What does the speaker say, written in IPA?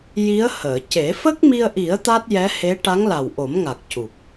j i˧˥ ə̯ h əː˨˩˨ c e˨˩˦ f ə˦˥ k̚ m i˧ ə̯ ʔ i˨˩˦ ə̯ t̪ a˦˥ t̚ j ɛ˧˥ h e˧˥ ʈ a˧˥ ŋ l a˨˩ w ʔ o˨˩˦ m ŋ a˨˩ k̚ c u˨˩ p̚

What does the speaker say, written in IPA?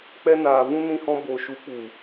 k͡p ɛ˧ n aː˨ v ũ˧ n ĩ˧ h ɔ̃˧ b o˨ ʃ u˨˦ k͡p u˨

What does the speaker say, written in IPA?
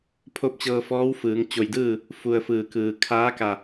pʰ o˧˥ p̚ t͡ɕ ɤː˧ f ɔː˧˥ w f ɯː˩˧ ŋ t͡ɕ o˧˩ j d ɯː˥˨ | f u˧ ə̯ f ɯː˧˩ k ɯː˩ kʰ aː˧˥ k a˧˩

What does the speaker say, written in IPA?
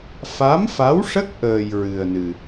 f a˧˥ m f a˧˥ w ʂ ə˦˥ k̚ ʔ əː˧ j ɹ ɨ˧ ə̯ n ɨ˧

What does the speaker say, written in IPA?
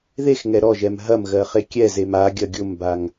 ð e x ŋ ɛ ɾ ɔ ʒ ɛ m ɦ ɐ m ɣ ɜ χ e kʲ ɛ z e m a ɡʲ ɐ ɡʲ ʊ m b a ŋ

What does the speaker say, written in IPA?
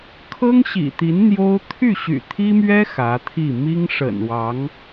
kʰ ɤ˥ ŋ ɕ ḭ˨˩ t̪ i˧˥ n n̪ j o˥ ʊ̯ t̪ʰ y˥˩ ɕ y̰˨˩ t̪ʰ i˥ m ɥ ɛ˥ x ä˧˥ t̪ʰ i˥˩ m i˥ ŋ ʂ ə̰˨˩ n w ɑ˧˥ ŋ

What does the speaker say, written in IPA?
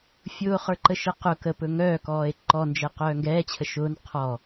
fʲ ʊː χ ə˞ ǃ ə ʃ ə q ʊ k ə p ɵ ŋ œː k ɔː e̯ ǃ ɔ n d͡ʒ ɛ q œː ŋ ɡ ɛː t͡ɕʰ ə ʃ ʊː n qʰ ɔ

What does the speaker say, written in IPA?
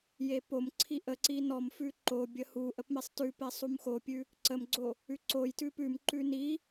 j e p o m ǀʰ i ʔ ə ǀ i n ɔ m f ʉ ǃ o bʲ ə h u ʔ ə p m e sˤ t ʉ p e sˤ u m x o pʲ ʉ | ǀ ə m ɡ͡ǀ o | ʉ ǀ o j t ʉ p ʉ m ǃ ʉ n i

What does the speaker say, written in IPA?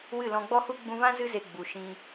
w ɨ˦˨ l ɔ̃˧ ɡ͡b ɔ˦ h u˦ ɡ͡b ũ˧ v ã˦ z ɨ˦ z e˧ ɡ͡b u˨ ʃ ĩ˧

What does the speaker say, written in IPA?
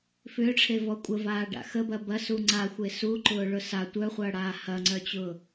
f ʏː ʈ͡ʂʰ e v ɔ kʷʼ ə v aː ɖ a̰ x ə b ɐ b ɐ s u ŋ͡ǀ a xʷ e s u ǃ ʊː ɭ ʊ s a tʷ œ χʷ ɐː ɽ aː h ɐ ŋ͡ǀ œ t͡ɕ ʊː

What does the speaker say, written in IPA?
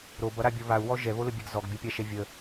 ɾ o b ʌ ɾ a bʲ o β a u̯ w ɔ ʒ ɛ β o l ə bʲ ɛ ɡ z ɔ ɡ bʲ ɔ pʲ a ʃ ɛ vʲ ə

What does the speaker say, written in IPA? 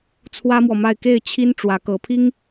t͡sʰ w ä˥ m w ɔ˨ m a˥˧ ɪ̯ k e˥˩ ɪ̯ t͡ɕʰ i˥ n ʈ͡ʂ w ä˧˥ k ɤ˧˥ pʰ i˥ ŋ

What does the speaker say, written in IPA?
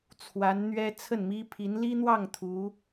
t͡sʰ w a˧˥ n n̪ ɥ ɛ˥ t͡sʰ ə˥˩ n m i˥ pʰ i˧˥ n l i˥ n̪ w ɑ˥˩ ŋ t̪ʰ u˧˥

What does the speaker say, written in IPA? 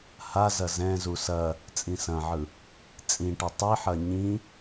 h a z ɐ z ɛ̃ z u s ɐ | t͡sʼ ĩ s ɐ̃ ʕ ɯ | t͡sʼ ĩ ʈ ɐ tˤ i ħ ɐ ɲ ĩ

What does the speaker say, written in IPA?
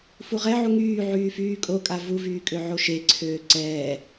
f u ʁ ɛ ʕ u ŋ yː ʕ yː f yː kʼ o kʼ a v u v yː kʼ ø ʕ o ʃ e ǀʰ øː ǀ ɛː

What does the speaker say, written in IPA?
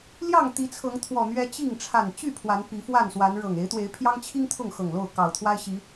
l j ɑ˥˨ ŋ t̪ i˨˦ t͡sʰ ɤ˨˦ ŋ t̪ʰ w ɔ˨˩ n̪ ɥ ɛ˦ t͡ɕ i˥˨ ŋ ʈ͡ʂʰ a˨˩ n t͡ɕ y˥˨ pʰ w a˨˦ n p i˨˦ f w a˥˨ n s w a˨˦ n ɻ ɤ˨˩ ŋ e˨˦ ɪ̯ t̪ w e˨˦ ɪ̯ pʰ j ɑ˦ ŋ t͡ɕʰ i˦ ŋ t̪ʰ ʊ˥˨ ŋ x ɤ˨˩ ŋ l o˥˨ ʊ̯ k ɑ˨˩ ʊ̯ t̪ʰ w a˦ ɪ̯ ɕ i˨˦

